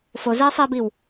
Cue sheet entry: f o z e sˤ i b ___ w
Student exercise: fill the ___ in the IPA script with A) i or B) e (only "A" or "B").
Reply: A